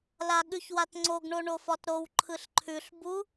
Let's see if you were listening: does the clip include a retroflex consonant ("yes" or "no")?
yes